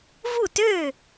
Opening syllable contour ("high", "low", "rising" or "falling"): falling